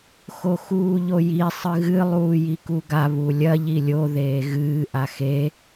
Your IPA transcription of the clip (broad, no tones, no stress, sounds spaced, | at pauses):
x o x uː ʎ o j i sˤ ɨ ɣ ɨ lˠ uː j i k u ɡ a β u lʲ ɐ ʎ i lʲ o ð eː ɣ ɨː ʔ a x e